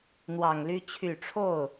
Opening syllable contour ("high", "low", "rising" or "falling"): low